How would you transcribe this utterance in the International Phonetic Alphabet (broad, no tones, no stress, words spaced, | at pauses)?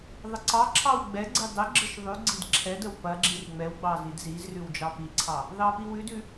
ðˤəǀɑǁʰɑw ɡ͡bɛɡ͡ǀi dˤəɡ͡ǁəʃ ðˤʉɡ͡ǀid ǁʰɛdəw pɐɡ͡ǁir ŋ͡mɛwɡ͡bɑ zidzizrʉw d͡ʒɑpiǀʰɑ | ðɑpiwʉdʉ